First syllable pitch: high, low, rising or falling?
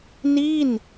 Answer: falling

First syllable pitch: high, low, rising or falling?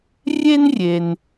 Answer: high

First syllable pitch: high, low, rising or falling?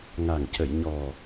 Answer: low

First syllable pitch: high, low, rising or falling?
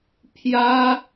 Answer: high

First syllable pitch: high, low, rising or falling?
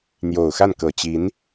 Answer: low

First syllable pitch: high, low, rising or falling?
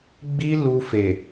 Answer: high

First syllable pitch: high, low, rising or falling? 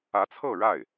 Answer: rising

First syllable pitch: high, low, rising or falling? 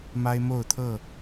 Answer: high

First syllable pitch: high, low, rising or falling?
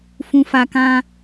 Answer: low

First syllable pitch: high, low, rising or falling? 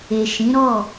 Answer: low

